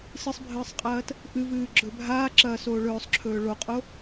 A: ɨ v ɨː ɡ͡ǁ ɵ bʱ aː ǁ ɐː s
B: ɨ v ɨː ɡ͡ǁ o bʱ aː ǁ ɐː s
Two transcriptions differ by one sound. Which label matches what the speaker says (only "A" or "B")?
A